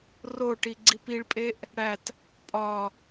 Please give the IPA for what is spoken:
r o ʈ i ɡ͡ǀ i p i ɭ pʼ e ʔ | ɽ æ t | pʼ ɒ

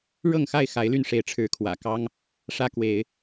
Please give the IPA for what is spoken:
ɻ ɤ˥˨ ŋ x a˥˨ ɪ̯ x a˨˦ ɪ̯ l y˥˨ n ʂ e˨˦ ɪ̯ ʈ͡ʂʰ ɻ̩˨˦ kʰ w ä̰˨˩ k ɑ˦ ŋ | ʂ ä˦ k w e˨˦ ɪ̯

